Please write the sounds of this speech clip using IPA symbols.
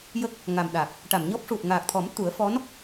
j ə˦˥ k̚ | ŋ a˨˩ m ɗ a˨˩ k̚ | ʈ a˨˩˨ m ɲ ɔ˦˥ p̚ ʂ u˨˩ t̚ ŋ aː˨˩ k̚ t̪ʰ ɔ˨˩˦ m t̪ u˨˩˦ ə̯ f ɔ˧˥ n

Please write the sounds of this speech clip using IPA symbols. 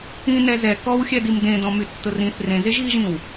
ĩ n ɛ z ɛ k ɔ w xʲ ɛ d i m d ẽ d ɔ̃ m y tː ʊ r ĩ θ r ẽ z e ʒ ɣ i ʒ ĩ w

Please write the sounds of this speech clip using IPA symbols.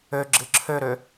ø ɡ͡ǁ ɨ ǁʰ ø ɾ ø

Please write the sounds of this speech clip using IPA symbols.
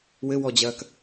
w ɘ w ɔ d͡ʑ ɐː k

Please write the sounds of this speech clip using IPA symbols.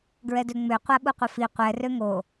ɡ ɹ ɛ d ø ŋ͡m ø qʷ a ɓ u qʷ ə f i qʷ ɛ r ø ŋ o

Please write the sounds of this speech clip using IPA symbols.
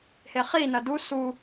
h e χ i n ɐ d u s u

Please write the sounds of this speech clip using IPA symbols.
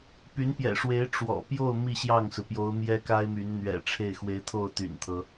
p y˧˥ n p j ɛ̰˨˩ ʂ w e˧˥ ɪ̯ ʈ͡ʂ w ɔ̰˨˩ p j o˥˧ ʊ̯ m i˥˧ ɕ j ɑ˥˩ ŋ s ɹ̩˩ p j o˧˥ ʊ̯ m j ɛ˥ k a˥ ɪ̯ m y˧˥ n n̪ ɥ ɛ̰˨˩ ʈ͡ʂʰ e˥˩ ɪ̯ x w e˧˥ ɪ̯ t̪ʰ o˥˩ ʊ̯ t̪ y̰˨˩ n t̪ʰ ɤ˦

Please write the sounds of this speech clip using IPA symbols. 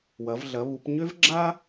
w ɐ˩˧ v ɮ ɐ˩˧ β u˩˧ p ɲ ø˥ v ɡ͡ǁ a˥

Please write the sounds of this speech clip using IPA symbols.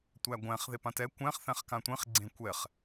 tʷ æ ɡʷ æ̃ χ ð e p ã t ɛ kʷ æ̃ χ θ æ̃ χ k ã tʷ ẽ χ ɡ͡ǀ ẽ kʷ ɛ χ

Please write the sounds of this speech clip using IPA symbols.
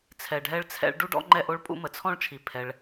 t͡sʰ ɛ˩ ɖʱ ɛ˥ ɭ t͡sʰ ɛ̰˥ ɭ ɖ u˥ ɖ ɔ̰˥ ŋ͡ǃ ɛ˥ ʔ o˥ ɭ pʼ ṵ˥ m ə˩ t͡sʰ ɔ̃˥ ɭ t͡ʃʰ i˩ pʰ ɛ˩ ɭ

